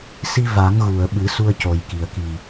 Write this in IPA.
s i˧ v a˨˩˦ ŋ ɣ u˨˩˨ ə̯ ɓ ɨ˨˩˦ s u˧ ə̯ c o˨˩ j k i˨˩ ə̯ k i˨˩

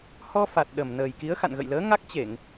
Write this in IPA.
h ɔ˧ f a˨˩ t̚ ɗ ə˨˩ m n əː˨˩ j k i˨˦ ə̯ x a̰˧˨ n ɣ ə̰˧˨ j l əː˨˦ ŋ a˦˥ k̚ t͡ɕ e˧˩˨ ŋ

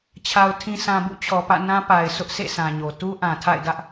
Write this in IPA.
t͡ɕʰ a˨ ʊ̯ tʰ ĩ˨ sʰ ã˨ b ṵ˦˨ t͡ɕʰ ɔ˨ p ä̰˦˨ n ã˦ p a˨ ɪ̯ s ʊ˦ ʔ sʰ ḛ˦˨ sʰ ã˨ ɲ o˨ t u˦ ʔ ã˨ tʰ a̰˦˨ ɪ̯ d ä˦ ʔ

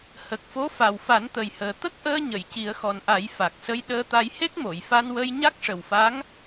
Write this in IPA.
h ə˨˩ k̚ f o˧˥ f a˨˩ w f a˨˩˦ n t̪ ə˨˩ j h əː˨˩ t̪ ə˦˥ k̚ ʔ əː˧ ɲ ə˨˩˨ j c i˨˩˦ ə̯ x ɔ˨˩ n ʔ a˨˩˦ j f a˨˩ k̚ s ə˧˥ j ɗ əː˧ t̪ a˧ j h e˦˥ k̚ m o˨˩˨ j f a˧ n w ə˧ j ɲ a˦˥ k̚ ʂ ə˨˩ w f a˧˥ ŋ

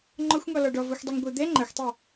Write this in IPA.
ŋ͡ǃ ɔ xʷ ŋ ɔ l ɔ ɖ ɔ v o xʷ dˤ u ŋ ɡʷ ɘ d̪ ɛ ŋ͡ǃ ɐ xʷ tˤ ɘ

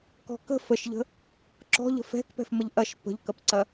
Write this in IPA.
k ɔ̤ k ə̤ f ə ʃ ʎ ə̤ | ǁ ɔ̤ ʎ ə̤ f ɛ̤ k p ɛ̤ f m ə ʎ ʔ ɐ ʃ p ə̤ ʎ k ɐ p ǀ ɐ

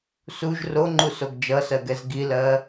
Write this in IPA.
s u ʒ r o ŋ͡ǃ u s o ɡ d͡ʒ ʌ s ɜ ɡ ɛ z ɡ i l ɜ

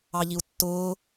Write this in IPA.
ɑ ʎ i u̯ tː ʊː

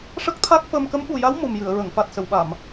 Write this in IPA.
ʂ ə˦˥ k̚ t̪ʰ a˦˥ k̚ f ə˧ m k ə˧˥ m ɓ u˨˩ j a˧˥ w m u˨˩ m j ɨ˨˩˨ ə̯ ɹ ə˨˩˨ ŋ f a˨˩ t̚ s ə˨˩˨ w ɓ a˨˩˨ m

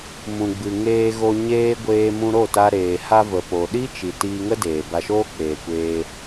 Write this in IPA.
m ũ˨ ɡ͡b ɨ˨ ŋ eː˧ ɣ o˧ ɲ eː˦ ɡʷ eː˧ m ũ˧ ɾ o˦˨ t a˧ ɾ eː˨ h a˧ v ə˨ p o˨ ɗ i˦ t͡ʃ i˨ t iː˧ ŋ ə˦ d eː˨ b a˧ ʃ oː˦ k͡p eː˨ kʷ eː˧

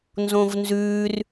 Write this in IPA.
n z õ v n z ʉ r

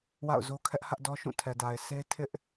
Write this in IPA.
w a̰˦˨ ʊ̯ z o˦ kʰ ɛ˦ ʔ h ä˦ ʔ d ɔ˦ ʃ ũ˦˨ tʰ ɛ˨ d a˨ ɪ̯ sʰ e˦ tʰ ɪ˦ ʔ

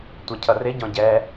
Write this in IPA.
tʷ ʌ cʰ ʌ r ɪ ɟ ɔ̃ ɟ ɛ

